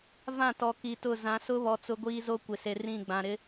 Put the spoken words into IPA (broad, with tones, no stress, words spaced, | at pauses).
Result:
vã˦˨tɔ˨ ki˨tʊ˦˨ zã˨˦ sʊ˦βɔ˨ t͡sʊ˦ɡʷiː˦zo˦ kʷɪ˨se˨ rĩ˦˨ɡ͡bã˨ ɾɪ˦